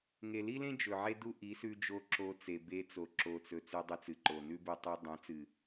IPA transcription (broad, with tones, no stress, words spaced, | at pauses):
ŋe˨li˦lẽ˦ d͡ʒɵ˨ʕe˦du˦ʔi˨˦ sʉ˧d͡ʒo˧ ǁo˧t͡se˨be˧ t͡so˨ǁo˨t͡sɵ˨ t͡sʉ˧dˤɨ˧t͡sɨ˨ǃo˨ nʉ˦bu˧tˤu˧ dˤẽ˨˦t͡sɨ˨